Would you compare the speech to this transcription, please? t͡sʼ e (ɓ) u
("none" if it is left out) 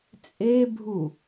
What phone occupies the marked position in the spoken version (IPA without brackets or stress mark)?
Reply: bʱ